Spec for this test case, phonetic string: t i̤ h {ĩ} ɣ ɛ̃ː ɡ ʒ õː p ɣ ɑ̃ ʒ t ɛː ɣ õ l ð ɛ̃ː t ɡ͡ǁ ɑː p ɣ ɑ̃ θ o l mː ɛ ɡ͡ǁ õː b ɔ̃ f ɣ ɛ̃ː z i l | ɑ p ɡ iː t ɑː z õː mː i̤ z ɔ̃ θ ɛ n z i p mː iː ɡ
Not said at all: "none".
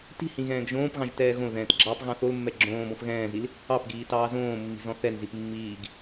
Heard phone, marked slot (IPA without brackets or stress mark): ĩ